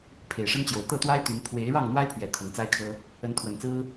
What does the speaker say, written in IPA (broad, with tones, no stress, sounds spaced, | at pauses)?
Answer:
pʰ e˨˩ ɪ̯ ʂ ə˦ n t͡ɕ j o˨˩ ʊ̯ t̪ ɤ˥˨ t̪ w a˦ ɪ̯ t̪ y˨˦ n pʰ w e˨˦ ɪ̯ ɻ ɑ˥˨ ŋ n̪ w a˦ ɪ̯ pʰ ɥ ɛ˨˩ t̪ʰ ɤ˨˦ ŋ t͡s a˦ ɪ̯ kʰ ɤ˦ | ə˨˦ n t̪ʰ w ə˨˩ n t͡s ɹ̩˦